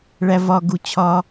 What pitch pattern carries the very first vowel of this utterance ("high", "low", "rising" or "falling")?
low